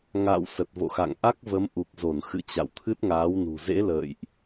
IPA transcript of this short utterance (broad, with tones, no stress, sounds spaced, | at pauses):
ŋ a̰ː˧˨ w s ə˨˩ t̚ v o̰˧˨ x a̰˧˨ ŋ ʔ a˦˥ k̚ v ə˨˦ m ʔ u˨˩ k̚ z o˧˩ n x ɨ̰˧˨ t͡ɕ a̰˧˨ w t̪ʰ ɨ˦˥ t̚ ŋ aː˨˦ w n ṳ˨˩ z ḛ˧˥ l ə̰ː˧˨ j ʔ